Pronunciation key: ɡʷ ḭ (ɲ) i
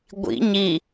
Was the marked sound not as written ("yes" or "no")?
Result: no